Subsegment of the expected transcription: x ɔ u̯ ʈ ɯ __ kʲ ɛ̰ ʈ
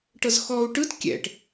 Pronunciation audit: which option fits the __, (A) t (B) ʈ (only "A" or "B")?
A